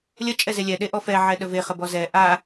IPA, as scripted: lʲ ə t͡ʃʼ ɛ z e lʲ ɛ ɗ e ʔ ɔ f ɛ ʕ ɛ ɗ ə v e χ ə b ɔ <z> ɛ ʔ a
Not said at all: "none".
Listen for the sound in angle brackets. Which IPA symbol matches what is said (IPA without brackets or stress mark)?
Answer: z